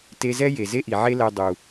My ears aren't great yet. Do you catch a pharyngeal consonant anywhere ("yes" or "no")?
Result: yes